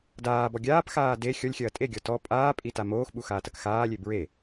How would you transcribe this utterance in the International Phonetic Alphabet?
d aː b ɔ ɡʲ aː p x aː d e xʲ ɔ lʲ xʲ ɐː tʼ e ɡʲ ɔ t ɔ pʼ aː pʼ i t a m oː x ɓ u x aː t ɐ k x aː lʲ e b ɹ e

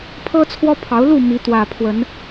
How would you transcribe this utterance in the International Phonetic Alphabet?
pʰ ɤ˦ t͡sʰ w ɔ˦ pʰ ɑ˨˦ ʊ̯ l u˥˨ m i˨˦ t̪ w ä˨˩ pʰ w ə˨˦ n

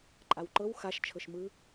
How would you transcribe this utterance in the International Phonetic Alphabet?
ǃʼ a w ǃ ɤ w x a ʃ t͡ʃʰ ɤ ʃ m ɯ

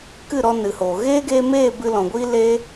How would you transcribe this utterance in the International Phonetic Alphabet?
k ɨ˦˨ ɾ ɔ˧ n ɨ˨ h oː˨ ɣ eː˦ ɡ eː˧ m eː˦˨ b ɨ˧ l ɔ̃˨ ɡʷ iː˦ l eː˧

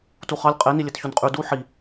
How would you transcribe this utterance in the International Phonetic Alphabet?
t u χ ɑ lʲ qʼ e n i lʲ e t ç o n qʼ y d u ħ i

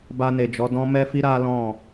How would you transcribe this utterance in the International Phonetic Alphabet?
b a˧ n e˨ d͡ʒ ɔ˨˦ d ɔ̃˦ m ɛ˦ f i˦ ɾ a˦ l ɔ̃˦˨

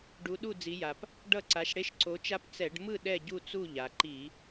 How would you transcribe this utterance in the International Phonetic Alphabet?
ɖ u˨˦ ɗ u˥˩ d͡z i˨˦ j a˩ p | ɖ ʌ˥˩ ǀ a˨˦ ʃ ɽ e˦˥ ʃ ǀ o˨˦ t͡ʃ a˦˥ p t͡s ɛ˧˩˧ ɖ m ɯ˥˩ ɗ ɛ˥˩ ɟ u˥˩ t͡s u˥˩ ʎ a˩ ǃ i˧˩˧

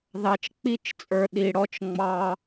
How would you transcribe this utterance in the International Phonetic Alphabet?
ð ɑ˨ t͡ʃ k͡p i˦˨ t͡ʃ t͡sʼ ə˞˨ ɗ i˨ ɽ ɔ˦ t͡ʃ ŋ͡m ɑ˦

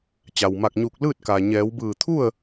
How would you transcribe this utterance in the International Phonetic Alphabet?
t͡ɕ a˩ w m a˧˩ k̚ ɲ uː˧˩ k̚ l ɯː˥˨ t̚ k aː˩ ɲ ɛː˩˧ w b ɯː˧˩ t̪ʰ u˥˨ ə̯

